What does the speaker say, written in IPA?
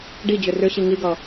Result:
ɖ i d͡ʑ ʏ r ʏ ɕ i ŋ i ɡ ʌ

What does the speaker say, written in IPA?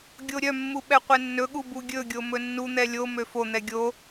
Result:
ɡʲ o ɾʲ œ mː u ɓ ɛ qʷ ɛ nː ɵ ɠ u b u ɡʲ ɵ ɡʲ o m ɵ nː u n̪ ɛ lʲ o m ø f o n̪ ɛ ɡʲ o

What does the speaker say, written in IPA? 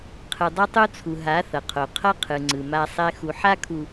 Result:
qʰ ɯ˨ dˤ ʌ˦ tˤ u˦ t͡sʰ u˨ ɦ a˨˦ θ ʌ˨ qʰ o˨ qʰ ʌ˦ qʰ ɯ˨ ŋ͡ǀ ɯ˨ m a˦ sˤ ɛ˦ x u˨ ħ a˦ kʰ u˨

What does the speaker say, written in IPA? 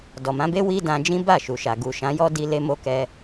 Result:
d ɔ˨ m ã˨˦ b e˦ w i˦ d ã˧ d͡ʒ ĩ˦ b a˦˨ ʃ u˨ ʃ a˨ ɡ u˨ ʃ ã˨˦ j ɔ˦ d i˧ l e˧ m o˧ k ɛ˧

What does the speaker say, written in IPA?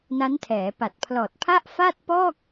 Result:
n a˦˥ n tʰ ɛː˩˦ p a˨˩ t̚ pʰ l ɔː˨˩ t̚ pʰ a˥˩ ʔ f a˥˩ t̚ p ɔː˥˩ k̚

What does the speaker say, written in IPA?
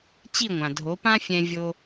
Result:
t͡ɕ i˥˩ ŋʷ ã˩ dʱ o˩˥ p ã˥ fʲ ɛ̃˧ vʲ o˧

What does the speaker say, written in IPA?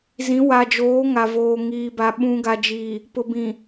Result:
z ĩ˨˦ w a˨ d͡ʒ oː˨˦ ŋ a˨ v oː˨ ŋ iː˨ b a˨ ɓ ũ˨ ɡ a˨ d͡ʒ iː˨ | p ʊ˨ b ĩ˨

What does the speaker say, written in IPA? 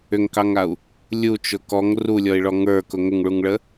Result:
ʏ ŋ k ɑ ŋ a u̯ | lʲ u t͡ʃ ʊ k ɔ ŋ r u lʲ ɔ i̯ ɭ ɔ ŋ ə˞ k ʊ ŋ ʏ ŋ ɭ u ŋ ɭ ə

